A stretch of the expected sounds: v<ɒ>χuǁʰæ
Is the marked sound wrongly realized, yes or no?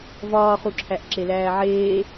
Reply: yes